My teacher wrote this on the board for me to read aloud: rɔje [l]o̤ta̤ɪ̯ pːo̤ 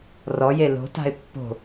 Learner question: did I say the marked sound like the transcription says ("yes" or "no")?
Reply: yes